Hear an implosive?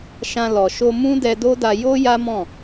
no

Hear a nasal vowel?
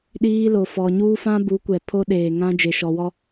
yes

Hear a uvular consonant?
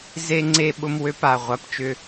yes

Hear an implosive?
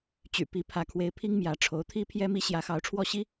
no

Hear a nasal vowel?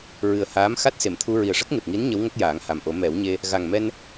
no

